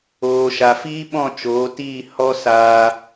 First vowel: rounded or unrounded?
rounded